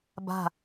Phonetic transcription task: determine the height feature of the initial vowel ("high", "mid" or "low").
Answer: low